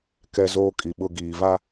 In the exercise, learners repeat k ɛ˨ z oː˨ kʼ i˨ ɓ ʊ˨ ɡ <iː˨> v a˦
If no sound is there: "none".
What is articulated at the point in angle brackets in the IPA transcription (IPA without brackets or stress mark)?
iː˨